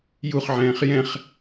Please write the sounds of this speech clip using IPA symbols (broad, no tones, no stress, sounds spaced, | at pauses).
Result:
j u χ ʕ ɛ̃ː χ j ɛ̃ χ